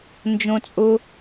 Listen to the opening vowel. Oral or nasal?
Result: nasal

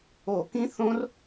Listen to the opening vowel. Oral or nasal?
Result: oral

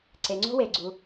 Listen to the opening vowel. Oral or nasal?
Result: oral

